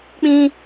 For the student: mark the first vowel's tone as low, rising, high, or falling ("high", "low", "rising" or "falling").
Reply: high